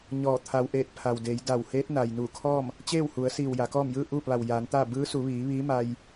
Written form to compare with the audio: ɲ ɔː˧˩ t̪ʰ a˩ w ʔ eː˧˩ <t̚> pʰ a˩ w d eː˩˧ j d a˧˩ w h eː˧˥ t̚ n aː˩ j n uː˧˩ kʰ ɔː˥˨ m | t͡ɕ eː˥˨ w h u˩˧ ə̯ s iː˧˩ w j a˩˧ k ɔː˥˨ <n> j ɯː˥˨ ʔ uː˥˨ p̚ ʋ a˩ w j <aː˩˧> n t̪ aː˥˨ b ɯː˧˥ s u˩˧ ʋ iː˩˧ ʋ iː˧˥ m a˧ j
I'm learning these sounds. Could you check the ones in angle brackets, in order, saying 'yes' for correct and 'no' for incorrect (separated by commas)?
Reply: yes, no, yes